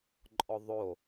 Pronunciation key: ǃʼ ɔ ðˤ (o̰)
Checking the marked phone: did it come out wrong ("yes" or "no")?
yes